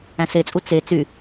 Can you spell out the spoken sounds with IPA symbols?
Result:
æ̃ s e t͡sʼ u t͡s e t͡s y

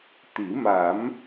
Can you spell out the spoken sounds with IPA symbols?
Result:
t̪ i˨˩˦ m a˨˩˦ m

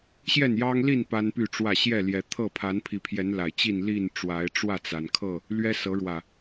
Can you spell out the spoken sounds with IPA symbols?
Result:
ɕ j ɛ˥˨ n j ɑ˦ ŋ l i˥˨ n p a˦ n p y˥˨ ʈ͡ʂ w ä˥˨ ɕ j ɛ˥˨ l j ɛ˨˦ t̪ʰ ɤ˥˨ pʰ a˨˦ n pʰ i˨˦ pʰ j ɛ˨˦ n l a˨˩ ɪ̯ t͡ɕ i˥˨ n l i˥˨ n ʈ͡ʂ w a˨˦ ɪ̯ ʈ͡ʂ w ä˥˨ t͡s a˩ n kʰ ɤ˥˨ | l ɥ ɛ˦ s ɤ˨˦ ɻ w ä˨˩

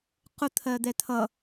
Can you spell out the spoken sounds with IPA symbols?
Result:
q ʊ t̪ʰ ɜ d̪ ɛ t̪ʰ ʌ

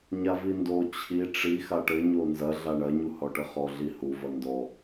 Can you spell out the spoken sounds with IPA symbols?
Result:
ɲ a v i n d o t͡ɕʰ i ʈ͡ʂ i x a ʈ ɘ ɲ o n z ɐ ɮ a ɳ ɐ ɲ u h ɔ ʈ ɘ χ ɔ ɮ i h u v ɐ n d ɔ

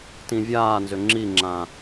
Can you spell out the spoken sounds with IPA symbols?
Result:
t ĩ vʲ aː n z ʏ ŋ͡ǁ i ŋ͡ǁ ã

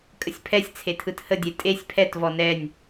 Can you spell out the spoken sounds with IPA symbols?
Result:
kʼ ə sʲ pʰ ɛ sʲ t͡sʰ e tʰ ɯ t h ə dʲ e tʼ e sʲ pʰ ɛ t v ɔ n ɛ nʲ

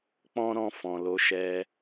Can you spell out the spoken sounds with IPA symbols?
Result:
k͡p ɔ̃˦ ɾ ɔ̃˧ f ɔ̃˨ l o˨˦ ʃ ɛ˧

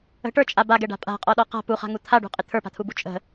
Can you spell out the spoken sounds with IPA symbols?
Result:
ə̤ ʈ ə˞ t͡ʃʼ a b a ɡ ɛ ɖ a̤ pʼ a̤ qʼ ɔ ɗ ɔ q a̤ p u χ a̤ ŋ u t̪ʰ a ɖ ṳ qʼ ɪ t̪ʰ ə˞ p a̤ t̪ʰ u b u t͡ʃʼ ə̤

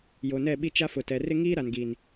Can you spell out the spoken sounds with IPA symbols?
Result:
j o˨ n ɛ˦˨ ɓ i˦ t͡ʃ a˦ f ʊ˨ t ɛ˨ r ɪ˦ ŋ iː˦ ɾ a˨ n ɡ iː˨ n

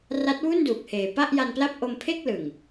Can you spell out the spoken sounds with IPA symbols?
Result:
r a˦˥ t̚ w u˥˩ n d uː˨˩ k̚ h eː˨˩ p a˥˩ ʔ j a˧ n p l a˥˩ p̚ ʔ o˧ m pʰ e˥˩ k̚ l ɯ˨˩ ŋ

